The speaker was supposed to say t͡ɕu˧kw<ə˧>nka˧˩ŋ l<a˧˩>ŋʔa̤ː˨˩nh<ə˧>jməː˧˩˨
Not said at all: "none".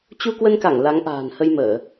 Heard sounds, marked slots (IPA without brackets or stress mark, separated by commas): ə˧, a˨˦, ə˧